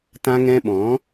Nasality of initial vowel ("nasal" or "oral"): nasal